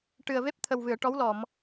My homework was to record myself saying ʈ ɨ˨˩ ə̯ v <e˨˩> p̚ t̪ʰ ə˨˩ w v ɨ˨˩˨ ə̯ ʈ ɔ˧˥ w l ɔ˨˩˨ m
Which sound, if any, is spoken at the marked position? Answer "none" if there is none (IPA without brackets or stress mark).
e˦˥